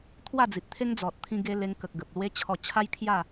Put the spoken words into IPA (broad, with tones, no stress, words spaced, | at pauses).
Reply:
t̪ʰwa˥˧d͡zi˨t̚t̪ʰe˦ŋ d͡zɔ˨t̚t̪ʰĩ˧ ɡe˧ le˧ŋkə˨k̚ɡə˨p̚ lwe˧ t͡ɕʰɔ˧t͡ɕʰa˦jkʰja˥˧